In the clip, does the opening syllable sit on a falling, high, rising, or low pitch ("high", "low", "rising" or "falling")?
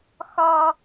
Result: high